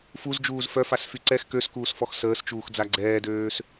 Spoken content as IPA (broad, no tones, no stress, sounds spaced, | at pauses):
f u z d͡ʒ uː z f œ f a s f y ǀ ɛ x k ø s k uː s f ɔ x s əː s t͡ʃ uː x d͡z a ɡ͡ǀ ɛː d øː s